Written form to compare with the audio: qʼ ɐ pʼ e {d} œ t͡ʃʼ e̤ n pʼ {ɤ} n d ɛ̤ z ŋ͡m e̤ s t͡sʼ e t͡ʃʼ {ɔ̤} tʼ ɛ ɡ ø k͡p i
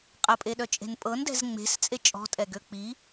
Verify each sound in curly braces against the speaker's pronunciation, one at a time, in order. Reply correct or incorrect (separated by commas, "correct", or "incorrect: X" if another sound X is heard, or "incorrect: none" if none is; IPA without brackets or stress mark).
incorrect: ɗ, correct, correct